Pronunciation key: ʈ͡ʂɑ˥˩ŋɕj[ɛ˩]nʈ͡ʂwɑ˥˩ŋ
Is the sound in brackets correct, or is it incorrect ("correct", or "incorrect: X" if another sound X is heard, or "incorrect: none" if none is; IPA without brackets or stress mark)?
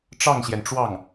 correct